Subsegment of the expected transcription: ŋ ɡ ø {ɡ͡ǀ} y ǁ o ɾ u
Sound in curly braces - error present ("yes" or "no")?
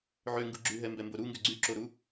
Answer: no